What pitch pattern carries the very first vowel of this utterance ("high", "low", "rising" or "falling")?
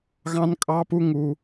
high